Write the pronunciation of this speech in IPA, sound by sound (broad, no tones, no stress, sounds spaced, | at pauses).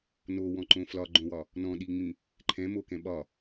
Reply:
n o w ɔ̃ ǃ õ f l ɒ ɡ͡ǃ õ w ɒ | n ɔ̃ ɗ i ŋ͡m ĩ | ǃʰ ɛ̃ m o k ɛ̃ ɓ ɒ